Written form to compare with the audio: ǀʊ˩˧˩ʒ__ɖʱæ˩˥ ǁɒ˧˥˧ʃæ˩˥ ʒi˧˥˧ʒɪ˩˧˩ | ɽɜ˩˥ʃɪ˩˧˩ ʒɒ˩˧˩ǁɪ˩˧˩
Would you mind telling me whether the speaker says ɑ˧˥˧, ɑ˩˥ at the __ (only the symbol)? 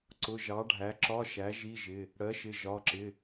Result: ɑ˩˥